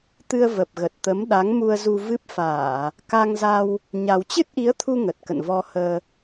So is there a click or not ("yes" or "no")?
no